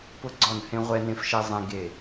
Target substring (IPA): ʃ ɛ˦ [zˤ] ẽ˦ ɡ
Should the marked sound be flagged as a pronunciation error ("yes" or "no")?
no